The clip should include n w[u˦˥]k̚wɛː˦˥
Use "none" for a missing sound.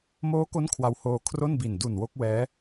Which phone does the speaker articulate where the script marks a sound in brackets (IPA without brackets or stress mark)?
o˦˥